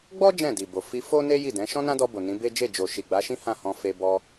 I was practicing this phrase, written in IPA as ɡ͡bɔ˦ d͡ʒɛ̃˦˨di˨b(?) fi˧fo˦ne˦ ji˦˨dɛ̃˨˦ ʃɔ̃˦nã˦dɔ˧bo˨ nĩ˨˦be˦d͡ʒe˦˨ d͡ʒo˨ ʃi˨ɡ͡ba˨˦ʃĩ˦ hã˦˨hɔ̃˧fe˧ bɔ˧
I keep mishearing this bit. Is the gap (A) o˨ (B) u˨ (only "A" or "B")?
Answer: A